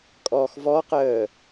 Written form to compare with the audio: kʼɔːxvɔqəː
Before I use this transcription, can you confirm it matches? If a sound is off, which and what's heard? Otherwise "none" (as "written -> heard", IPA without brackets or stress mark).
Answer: none